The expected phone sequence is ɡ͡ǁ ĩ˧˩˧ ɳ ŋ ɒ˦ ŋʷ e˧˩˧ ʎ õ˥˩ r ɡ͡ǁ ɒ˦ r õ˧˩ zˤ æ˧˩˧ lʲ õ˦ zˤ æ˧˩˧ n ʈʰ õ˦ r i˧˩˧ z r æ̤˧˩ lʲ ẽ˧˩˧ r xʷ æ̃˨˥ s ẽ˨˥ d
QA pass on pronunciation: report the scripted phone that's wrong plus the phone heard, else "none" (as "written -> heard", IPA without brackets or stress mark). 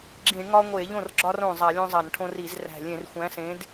none